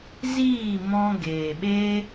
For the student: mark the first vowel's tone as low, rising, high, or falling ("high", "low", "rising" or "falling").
falling